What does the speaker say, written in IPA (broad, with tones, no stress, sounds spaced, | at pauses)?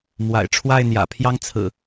m w a̰˨˩ ɪ̯ ʈ͡ʂʰ w a˥˨ ɪ̯ n̪ j ä̰˨˩ pʰ j ɑ˦ ŋ t͡sʰ ɹ̩˨˩